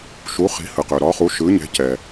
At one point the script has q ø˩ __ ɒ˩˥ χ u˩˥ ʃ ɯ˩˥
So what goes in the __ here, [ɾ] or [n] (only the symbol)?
ɾ